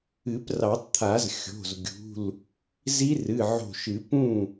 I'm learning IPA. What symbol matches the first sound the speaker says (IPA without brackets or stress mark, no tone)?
ɨ